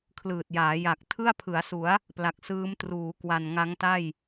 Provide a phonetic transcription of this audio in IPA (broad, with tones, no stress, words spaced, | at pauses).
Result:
kʰlɯː˨˩t̚jaː˩˦ ja˨˩k̚ tʰɯ˥˩a̯pʰɯ˩˦a̯su˩˦a̯ | pla˨˩k̚sɯː˦˥mtruː˩˦ kwa˨˩nŋa˦˥ŋta˥˩j